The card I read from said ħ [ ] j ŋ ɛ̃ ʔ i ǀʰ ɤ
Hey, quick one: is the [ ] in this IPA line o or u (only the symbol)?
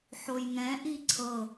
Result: o